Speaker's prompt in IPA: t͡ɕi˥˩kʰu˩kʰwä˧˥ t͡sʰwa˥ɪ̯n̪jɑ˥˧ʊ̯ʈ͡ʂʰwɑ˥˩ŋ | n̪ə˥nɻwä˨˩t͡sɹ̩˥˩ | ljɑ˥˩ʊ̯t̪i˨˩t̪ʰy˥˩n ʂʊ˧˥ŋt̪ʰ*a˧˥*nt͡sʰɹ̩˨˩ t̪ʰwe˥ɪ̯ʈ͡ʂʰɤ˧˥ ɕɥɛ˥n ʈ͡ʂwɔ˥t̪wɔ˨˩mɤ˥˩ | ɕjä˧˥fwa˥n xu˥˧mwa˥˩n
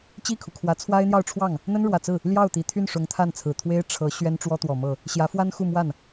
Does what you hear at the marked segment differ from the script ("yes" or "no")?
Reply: yes